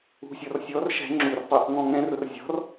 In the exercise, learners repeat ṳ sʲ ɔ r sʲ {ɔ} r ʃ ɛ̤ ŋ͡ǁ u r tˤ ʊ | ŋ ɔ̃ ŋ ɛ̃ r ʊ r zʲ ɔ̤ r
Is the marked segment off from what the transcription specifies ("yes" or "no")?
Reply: no